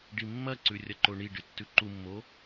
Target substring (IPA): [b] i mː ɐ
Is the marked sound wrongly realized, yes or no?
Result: yes